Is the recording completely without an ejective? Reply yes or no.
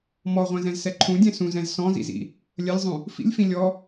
yes